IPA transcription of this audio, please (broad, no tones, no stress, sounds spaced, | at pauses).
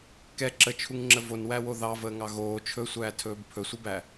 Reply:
k ɛ ǁ ə t͡ʃʰ u ŋ ŋ͡ǁ ə v o n w æ w o ð ɑ v əː ŋ ɑ ɣ oː t͡ʃʰ ɵ sʷ æː tʰ ɵː b pʰ ɵ sʷ ə b æ